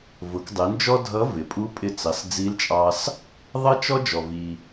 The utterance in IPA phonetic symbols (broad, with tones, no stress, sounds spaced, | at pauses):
v ʊ˩˧ k dˤ ɪ˩˧ n d͡ʒ ɔ˥ dʱ ʌ˧˥ v ɪ˩˧ pʼ u˧˥ pʼ ɪ˧ t͡s ɑ˩˧ s d͡z i˧˥ l t͡ʃʼ ɑ˧ s | ðˤ ʌ˥ t͡ʃ ɔ˥ d͡ʒ ɔ˩ v i˩